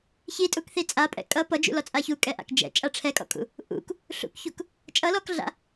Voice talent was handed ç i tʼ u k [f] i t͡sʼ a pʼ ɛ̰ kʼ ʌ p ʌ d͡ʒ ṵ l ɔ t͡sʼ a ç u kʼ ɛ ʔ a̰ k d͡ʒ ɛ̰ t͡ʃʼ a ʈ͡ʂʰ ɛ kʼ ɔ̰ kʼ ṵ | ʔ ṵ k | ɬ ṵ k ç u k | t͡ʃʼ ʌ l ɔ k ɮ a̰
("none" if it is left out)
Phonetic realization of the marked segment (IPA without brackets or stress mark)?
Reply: θ